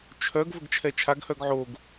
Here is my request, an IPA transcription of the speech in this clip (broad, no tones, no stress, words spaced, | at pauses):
t͡ʃʰœɡ vəɡt͡ʃʰɛt͡ʃʰaɡ hœɡʕoɡ